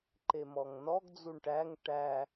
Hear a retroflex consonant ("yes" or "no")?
yes